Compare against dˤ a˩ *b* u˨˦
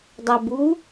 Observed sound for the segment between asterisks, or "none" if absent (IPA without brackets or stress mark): b